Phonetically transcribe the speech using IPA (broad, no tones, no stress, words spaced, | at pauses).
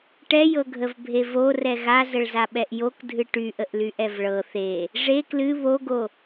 ʈɛjɤɡʱəvbʱe vorɛ ɣazəɭzaɓɛʔ jokdʱɨ ʈyʔəʔlyʔɛv ɭɤ θe | ʐe klɨ βoɡo